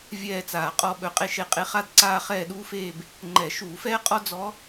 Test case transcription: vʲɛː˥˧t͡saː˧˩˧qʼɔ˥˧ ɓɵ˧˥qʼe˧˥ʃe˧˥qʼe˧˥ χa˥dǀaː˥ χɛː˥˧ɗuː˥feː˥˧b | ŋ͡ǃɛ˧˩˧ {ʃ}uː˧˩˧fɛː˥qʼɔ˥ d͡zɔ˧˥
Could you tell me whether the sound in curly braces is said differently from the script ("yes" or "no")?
no